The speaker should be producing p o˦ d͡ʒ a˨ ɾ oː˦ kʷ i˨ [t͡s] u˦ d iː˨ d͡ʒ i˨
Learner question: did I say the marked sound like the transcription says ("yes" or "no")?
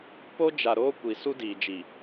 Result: no